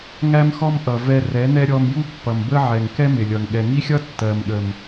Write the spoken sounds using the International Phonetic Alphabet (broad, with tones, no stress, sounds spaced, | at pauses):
ŋ æ˦ m x ɔ˦ m ʔ ʌ˨ v ɛ˧ r ɛ˨˦ n ɛ˦ ɾʲ ɔ˧ m j u˦ pː ʌ˨ m b ə˦ ʕ ɛ˨ ŋ k ɛ˦ m ɪ˨ lʲ ʌ˨ ŋ ɠ ɛ˨ ŋ i˦ xʲ ʌ˦ tː ɜ˨ m ɠ ə˨ m